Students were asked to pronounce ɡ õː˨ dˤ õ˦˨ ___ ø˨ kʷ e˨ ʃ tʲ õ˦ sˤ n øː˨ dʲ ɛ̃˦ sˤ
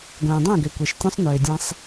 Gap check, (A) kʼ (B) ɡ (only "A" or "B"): B